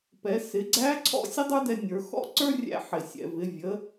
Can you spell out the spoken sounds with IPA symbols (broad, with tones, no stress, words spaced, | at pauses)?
pɛ˩˧sɪ˩˧ɡ͡ǀæ˧˥ ǀʰɔ̰˥ sʲə˥dˤə˞˥dɛ˧nʲə˞˩˧ xɔ̰˥ǀə˞˥rʲæ̰˧ ħɪ˩sʲɛ̰˩vɪ˩˧ vʲə˩˧